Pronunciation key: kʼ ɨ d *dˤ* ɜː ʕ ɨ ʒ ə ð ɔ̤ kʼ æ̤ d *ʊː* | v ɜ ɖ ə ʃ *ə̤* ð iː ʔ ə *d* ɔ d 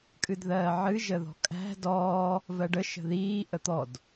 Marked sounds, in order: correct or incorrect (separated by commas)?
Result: incorrect, incorrect, correct, incorrect